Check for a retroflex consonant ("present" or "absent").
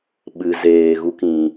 absent